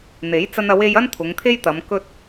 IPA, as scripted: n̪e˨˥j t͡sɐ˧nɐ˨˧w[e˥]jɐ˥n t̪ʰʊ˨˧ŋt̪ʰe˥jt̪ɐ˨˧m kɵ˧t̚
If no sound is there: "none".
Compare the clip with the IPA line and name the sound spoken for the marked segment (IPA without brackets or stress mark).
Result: e˧